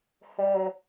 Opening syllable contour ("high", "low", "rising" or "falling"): low